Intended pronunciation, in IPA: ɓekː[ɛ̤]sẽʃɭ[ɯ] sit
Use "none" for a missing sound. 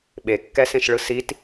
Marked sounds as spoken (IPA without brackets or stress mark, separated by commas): ɛ, ɯ